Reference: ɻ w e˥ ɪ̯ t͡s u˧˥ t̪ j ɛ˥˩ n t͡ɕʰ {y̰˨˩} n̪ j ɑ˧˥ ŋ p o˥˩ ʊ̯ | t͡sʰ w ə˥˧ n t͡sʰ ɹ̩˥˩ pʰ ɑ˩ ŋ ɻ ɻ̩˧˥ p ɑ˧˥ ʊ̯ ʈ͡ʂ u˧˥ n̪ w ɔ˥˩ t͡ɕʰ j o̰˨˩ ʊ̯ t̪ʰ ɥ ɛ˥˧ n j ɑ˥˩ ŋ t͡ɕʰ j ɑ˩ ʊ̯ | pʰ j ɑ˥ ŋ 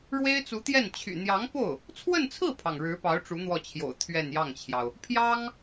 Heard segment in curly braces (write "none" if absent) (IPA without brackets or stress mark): y̰˨˩